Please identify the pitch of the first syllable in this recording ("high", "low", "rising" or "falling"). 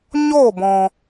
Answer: falling